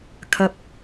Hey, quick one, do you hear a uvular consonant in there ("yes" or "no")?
no